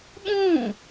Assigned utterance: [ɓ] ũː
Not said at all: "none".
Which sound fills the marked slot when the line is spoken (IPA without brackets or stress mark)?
ɓ